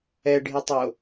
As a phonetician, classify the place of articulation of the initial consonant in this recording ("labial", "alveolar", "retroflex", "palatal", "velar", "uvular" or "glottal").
retroflex